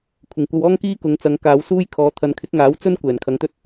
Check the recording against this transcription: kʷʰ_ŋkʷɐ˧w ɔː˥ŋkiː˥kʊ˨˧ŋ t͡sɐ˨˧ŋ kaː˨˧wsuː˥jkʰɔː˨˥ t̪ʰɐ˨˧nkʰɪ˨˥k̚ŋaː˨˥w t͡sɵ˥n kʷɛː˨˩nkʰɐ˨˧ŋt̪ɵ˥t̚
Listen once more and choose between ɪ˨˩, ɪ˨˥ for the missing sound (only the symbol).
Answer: ɪ˨˩